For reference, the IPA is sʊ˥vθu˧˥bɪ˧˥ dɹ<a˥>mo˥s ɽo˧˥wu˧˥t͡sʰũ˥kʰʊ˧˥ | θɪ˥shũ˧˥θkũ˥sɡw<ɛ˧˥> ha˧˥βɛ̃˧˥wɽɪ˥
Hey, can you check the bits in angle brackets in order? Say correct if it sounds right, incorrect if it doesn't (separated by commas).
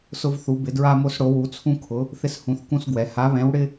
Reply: correct, correct